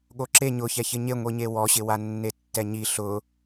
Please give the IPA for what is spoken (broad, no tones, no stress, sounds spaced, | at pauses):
ɠ o ǁ e ɲ ʊ ç ɛ ç ɪ ɲ e ŋʷ i ɲ e w ɔ ɕ ɪ w a nː e tː ɛ ɲ i ɬ ʊ